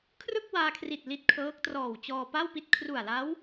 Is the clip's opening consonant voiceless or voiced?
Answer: voiceless